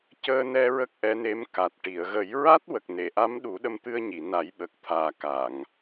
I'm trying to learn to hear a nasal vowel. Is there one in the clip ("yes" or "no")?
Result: no